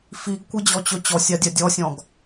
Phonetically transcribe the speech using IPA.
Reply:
f i ɡ kʷ ɨ d͡ʑ ɔ t͡ɕ ɵ t͡ɕ ɔ sʲ a dʲ a dʲ ɔ sʲ ɔ̃ ɡ

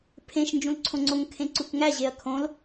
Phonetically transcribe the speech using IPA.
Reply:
pʰ ẽ ʃ n d͡ʒ ũ l ǀʰ õ ŋ͡ǀ o ŋ kʰ ẽ ǀ u k ŋ æ ʑ e ɐ̯ kʰ õ l

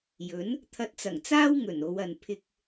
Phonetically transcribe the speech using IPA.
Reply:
j ɵ˨˥ n | t̪ʰ ɐ˧ t̚ t͡s ɐ˨˩ ŋ t͡s aː˥ w ŋ ɵ˨˩ n o˨˧ w ɐ˨ n pʰ ɪ˧ k̚

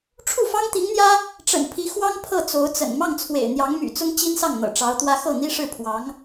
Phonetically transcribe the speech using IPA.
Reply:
ʈ͡ʂʰ u˥˩ f ɑ˥ ŋ t̪ i˧˥ ŋ n̪ j ä˥ | ʈ͡ʂ ə̰˨˩ n pʰ i˧˥ x w ɑ˥ ŋ pʰ ɤ˥˩ t͡s o˧˥ ʊ̯ t͡s ə̰˨˩ n m ɑ˥˩ ŋ t͡sʰ w ḛ˨˩ ɪ̯ n̪ j ɑ˧˥ ŋ m y̰˨˩ t͡s ʊ˥ ŋ t͡ɕ i˥ n s ɑ˥˩ ŋ n̪ ɤ̰˨˩ ʈ͡ʂ ɑ˧˥ ʊ̯ t̪ w ä˥ x ɤ˥˩ n̪ i˥ ʂ ɻ̩˥˩ pʰ w ɑ˧˥ ŋ

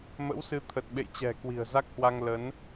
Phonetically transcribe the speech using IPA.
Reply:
m ə̰˧˥ w s ɨ˨˦ t̪ʰ ə˨˩ t̚ ɓ ḛ˧˨ j t͡ɕ ɛ̤˨˩ k w i̤˨˩ ə̯ z a˦˥ k̚ h w a˧ ŋ l ə˨˦ n

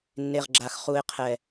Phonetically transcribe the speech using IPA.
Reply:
nː e˨ ʁ ɡ͡ǁ a˨ x χ u˨ ɪ̯ qʰ ɛ˨

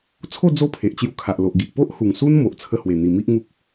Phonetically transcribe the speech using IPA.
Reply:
t͡sʰ o˥˧ d͡z o˦ pʰ e˨ ʔ t͡ɕ j u˧ kʰ a˨ ʔ l o˨ ʔ ɡ i˨ ʔ p o˦ ʔ h u˨˩ ŋ s u˦ n m o˨ ʔ t͡sʰ ə˧ h w e˨˩ n̪ i˨˩ m i˦ ʔ ŋ u˦ k̚

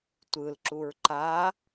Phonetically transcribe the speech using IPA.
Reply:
tʷ ɯ l ǁ u ɹ ǃ a

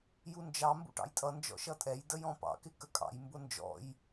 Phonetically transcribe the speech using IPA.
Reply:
j u n d͡ʒ ɑ m b ṵ ʈ ɑ̰ j tʼ ʌ n d͡ʒ ɔ̰ ʃ ʌ tʼ ɛ j d ə j ɔ̃ p ɑ̰ k ɪ k ə kʼ ɑ̰ j m b ʊ n d͡ʒ ɔ̰ j

